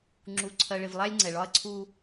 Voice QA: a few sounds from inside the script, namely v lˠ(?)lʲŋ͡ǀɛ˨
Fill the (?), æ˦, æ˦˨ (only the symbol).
æ˦